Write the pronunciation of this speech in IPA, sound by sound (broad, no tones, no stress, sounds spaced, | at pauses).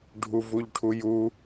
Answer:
ɖʱ u v u ʎ ʈʰ u j u